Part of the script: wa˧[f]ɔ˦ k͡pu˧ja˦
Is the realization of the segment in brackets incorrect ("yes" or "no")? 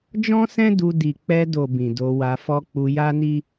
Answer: no